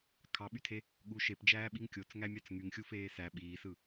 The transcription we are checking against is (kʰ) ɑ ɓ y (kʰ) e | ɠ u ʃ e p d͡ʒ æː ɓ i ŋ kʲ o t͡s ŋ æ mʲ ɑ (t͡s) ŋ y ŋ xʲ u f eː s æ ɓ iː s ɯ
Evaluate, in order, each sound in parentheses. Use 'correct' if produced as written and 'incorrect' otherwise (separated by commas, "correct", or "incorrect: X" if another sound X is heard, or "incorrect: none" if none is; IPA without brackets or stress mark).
correct, incorrect: tʰ, correct